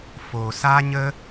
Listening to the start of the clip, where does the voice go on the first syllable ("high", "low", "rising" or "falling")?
low